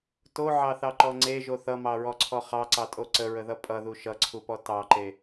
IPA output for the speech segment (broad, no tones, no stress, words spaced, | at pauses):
toʕɑθɑǃɔ ŋ͡ǀeʒo θʌmɑɹɔǀʰɔ χɑǀɑtʼo ǀəɹəðʌ pʼʌðu ʃʌǀʰupɔ tɑǃe